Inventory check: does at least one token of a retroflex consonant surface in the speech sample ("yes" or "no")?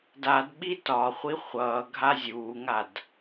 no